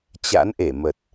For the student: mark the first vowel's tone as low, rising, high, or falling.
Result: rising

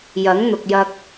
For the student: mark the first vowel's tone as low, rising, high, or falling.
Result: rising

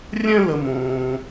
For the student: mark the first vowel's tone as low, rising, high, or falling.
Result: high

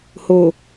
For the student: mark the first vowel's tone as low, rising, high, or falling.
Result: low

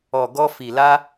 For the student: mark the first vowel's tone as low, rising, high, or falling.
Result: low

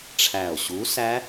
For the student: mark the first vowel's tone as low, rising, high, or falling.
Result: low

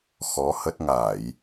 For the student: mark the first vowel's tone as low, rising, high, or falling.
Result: rising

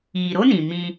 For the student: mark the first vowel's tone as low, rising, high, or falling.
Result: low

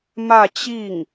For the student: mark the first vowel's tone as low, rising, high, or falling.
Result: falling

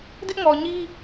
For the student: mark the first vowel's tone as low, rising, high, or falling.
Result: high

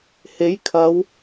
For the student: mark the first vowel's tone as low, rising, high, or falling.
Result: rising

